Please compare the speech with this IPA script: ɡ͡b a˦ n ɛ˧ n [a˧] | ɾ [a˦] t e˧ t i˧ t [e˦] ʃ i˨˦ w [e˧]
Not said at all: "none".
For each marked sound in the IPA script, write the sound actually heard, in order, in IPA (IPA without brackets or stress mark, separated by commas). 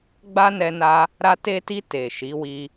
a˧, a˧, e˨, i˧